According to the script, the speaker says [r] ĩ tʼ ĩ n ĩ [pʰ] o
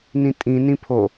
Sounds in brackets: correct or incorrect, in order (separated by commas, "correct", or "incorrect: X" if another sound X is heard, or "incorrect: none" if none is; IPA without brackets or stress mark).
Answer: incorrect: n, correct